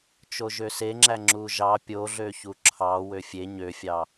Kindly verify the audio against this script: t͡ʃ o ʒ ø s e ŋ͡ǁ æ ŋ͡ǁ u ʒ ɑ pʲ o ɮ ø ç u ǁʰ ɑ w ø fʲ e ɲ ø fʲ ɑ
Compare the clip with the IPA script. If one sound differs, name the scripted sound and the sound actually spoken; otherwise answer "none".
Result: none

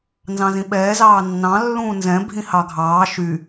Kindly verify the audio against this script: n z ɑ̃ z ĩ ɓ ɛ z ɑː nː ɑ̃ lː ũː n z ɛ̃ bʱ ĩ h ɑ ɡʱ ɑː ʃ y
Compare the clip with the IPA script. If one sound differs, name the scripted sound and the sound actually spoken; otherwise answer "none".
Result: ɛ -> ɛː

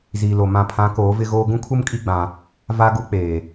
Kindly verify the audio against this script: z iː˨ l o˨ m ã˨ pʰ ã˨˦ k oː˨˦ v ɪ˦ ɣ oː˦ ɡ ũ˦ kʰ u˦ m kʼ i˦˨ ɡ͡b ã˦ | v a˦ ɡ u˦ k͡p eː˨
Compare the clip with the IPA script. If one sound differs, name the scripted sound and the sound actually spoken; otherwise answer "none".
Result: none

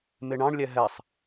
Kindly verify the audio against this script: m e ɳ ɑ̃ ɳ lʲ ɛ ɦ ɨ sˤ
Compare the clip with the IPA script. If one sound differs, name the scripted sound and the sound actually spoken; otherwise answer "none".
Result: ɨ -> ɛ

